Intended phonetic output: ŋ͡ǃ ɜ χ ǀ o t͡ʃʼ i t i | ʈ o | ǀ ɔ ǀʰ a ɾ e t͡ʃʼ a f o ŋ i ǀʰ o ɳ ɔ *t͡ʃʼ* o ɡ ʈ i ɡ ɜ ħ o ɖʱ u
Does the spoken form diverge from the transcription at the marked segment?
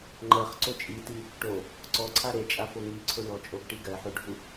no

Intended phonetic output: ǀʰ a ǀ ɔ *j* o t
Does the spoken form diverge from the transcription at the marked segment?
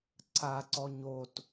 yes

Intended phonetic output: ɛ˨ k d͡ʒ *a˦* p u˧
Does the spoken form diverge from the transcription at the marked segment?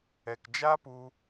no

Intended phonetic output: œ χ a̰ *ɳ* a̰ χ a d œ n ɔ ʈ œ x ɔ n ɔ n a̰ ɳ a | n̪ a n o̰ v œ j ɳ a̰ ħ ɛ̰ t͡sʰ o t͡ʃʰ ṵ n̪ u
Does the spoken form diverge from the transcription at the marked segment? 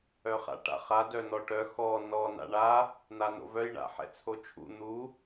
yes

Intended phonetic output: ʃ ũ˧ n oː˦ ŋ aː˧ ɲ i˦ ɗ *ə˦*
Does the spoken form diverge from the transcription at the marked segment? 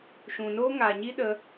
no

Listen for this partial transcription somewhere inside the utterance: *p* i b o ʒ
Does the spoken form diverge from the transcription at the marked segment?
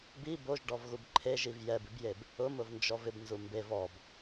yes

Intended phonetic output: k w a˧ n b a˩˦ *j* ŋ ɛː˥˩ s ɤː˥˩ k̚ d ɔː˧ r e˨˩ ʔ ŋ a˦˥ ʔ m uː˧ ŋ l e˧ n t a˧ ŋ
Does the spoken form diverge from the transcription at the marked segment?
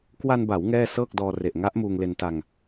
yes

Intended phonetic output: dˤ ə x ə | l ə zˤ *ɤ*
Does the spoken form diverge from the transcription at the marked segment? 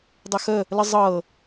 no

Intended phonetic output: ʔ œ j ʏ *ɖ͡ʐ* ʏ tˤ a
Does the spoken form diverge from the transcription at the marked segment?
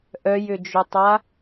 yes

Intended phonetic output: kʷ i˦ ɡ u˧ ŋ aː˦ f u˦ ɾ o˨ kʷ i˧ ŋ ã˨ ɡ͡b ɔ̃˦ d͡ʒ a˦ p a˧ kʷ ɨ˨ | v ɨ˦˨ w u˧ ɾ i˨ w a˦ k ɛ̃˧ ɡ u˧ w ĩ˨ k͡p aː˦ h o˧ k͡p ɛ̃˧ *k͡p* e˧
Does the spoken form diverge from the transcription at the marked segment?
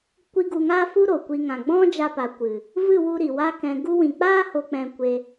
yes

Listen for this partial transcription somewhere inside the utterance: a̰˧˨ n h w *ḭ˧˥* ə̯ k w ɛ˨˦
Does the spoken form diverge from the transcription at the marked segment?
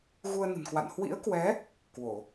no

